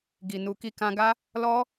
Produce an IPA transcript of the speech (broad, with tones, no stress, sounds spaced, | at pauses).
ɡ i˨ n u˨ k i˧ k ã˧ ɡ a˦ | l ɔ˦